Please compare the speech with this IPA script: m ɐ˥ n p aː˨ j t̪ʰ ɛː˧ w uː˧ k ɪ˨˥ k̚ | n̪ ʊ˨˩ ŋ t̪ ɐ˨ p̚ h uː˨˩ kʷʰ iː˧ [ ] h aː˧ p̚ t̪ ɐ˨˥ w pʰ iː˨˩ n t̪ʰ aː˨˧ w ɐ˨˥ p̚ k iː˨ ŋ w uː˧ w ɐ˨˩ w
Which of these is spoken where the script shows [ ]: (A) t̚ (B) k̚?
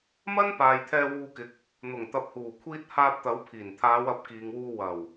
A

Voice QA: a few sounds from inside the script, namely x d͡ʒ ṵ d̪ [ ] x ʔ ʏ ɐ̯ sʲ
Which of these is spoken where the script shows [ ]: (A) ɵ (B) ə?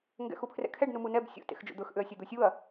A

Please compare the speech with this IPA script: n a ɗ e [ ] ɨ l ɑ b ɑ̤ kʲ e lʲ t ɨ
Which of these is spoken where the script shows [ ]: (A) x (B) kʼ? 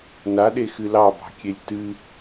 A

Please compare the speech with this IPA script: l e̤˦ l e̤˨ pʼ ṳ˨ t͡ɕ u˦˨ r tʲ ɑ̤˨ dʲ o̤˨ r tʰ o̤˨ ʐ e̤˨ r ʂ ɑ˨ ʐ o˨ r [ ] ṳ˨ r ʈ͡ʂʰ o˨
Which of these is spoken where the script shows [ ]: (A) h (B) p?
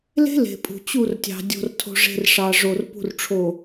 B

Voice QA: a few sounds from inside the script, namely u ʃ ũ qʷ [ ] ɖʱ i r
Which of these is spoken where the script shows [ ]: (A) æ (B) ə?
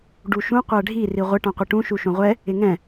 A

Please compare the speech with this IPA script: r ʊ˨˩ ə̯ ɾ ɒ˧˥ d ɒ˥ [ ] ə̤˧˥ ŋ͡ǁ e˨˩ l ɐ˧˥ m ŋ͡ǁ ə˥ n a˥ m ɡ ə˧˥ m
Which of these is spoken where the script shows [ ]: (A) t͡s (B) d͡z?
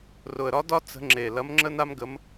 A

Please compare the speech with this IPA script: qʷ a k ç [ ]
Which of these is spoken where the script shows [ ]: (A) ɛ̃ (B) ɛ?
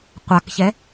B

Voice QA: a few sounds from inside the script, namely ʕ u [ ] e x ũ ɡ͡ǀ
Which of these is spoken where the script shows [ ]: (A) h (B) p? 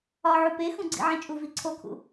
B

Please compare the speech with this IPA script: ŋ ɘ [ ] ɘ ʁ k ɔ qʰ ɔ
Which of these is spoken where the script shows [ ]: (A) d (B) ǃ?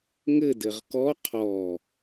A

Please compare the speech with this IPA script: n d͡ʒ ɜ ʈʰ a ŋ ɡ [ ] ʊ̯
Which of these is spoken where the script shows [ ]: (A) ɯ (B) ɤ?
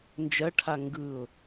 A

